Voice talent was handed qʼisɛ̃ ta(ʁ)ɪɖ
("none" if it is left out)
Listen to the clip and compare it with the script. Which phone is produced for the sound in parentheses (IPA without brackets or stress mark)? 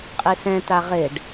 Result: ʁ